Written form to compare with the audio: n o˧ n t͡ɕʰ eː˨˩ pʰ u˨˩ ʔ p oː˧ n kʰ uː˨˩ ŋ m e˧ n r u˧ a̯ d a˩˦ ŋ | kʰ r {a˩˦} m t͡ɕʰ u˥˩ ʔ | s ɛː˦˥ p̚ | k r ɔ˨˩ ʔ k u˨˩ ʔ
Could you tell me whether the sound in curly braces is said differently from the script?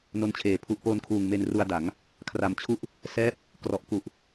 yes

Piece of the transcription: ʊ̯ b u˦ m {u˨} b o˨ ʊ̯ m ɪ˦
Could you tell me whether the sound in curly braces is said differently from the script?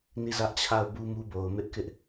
yes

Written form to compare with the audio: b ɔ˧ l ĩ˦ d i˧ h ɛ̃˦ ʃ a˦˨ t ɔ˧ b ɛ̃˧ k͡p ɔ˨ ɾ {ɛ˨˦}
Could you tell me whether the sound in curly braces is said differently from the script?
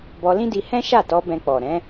yes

